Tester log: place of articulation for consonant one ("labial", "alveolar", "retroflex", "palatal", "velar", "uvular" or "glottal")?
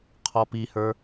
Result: uvular